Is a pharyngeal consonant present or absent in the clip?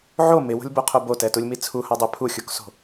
present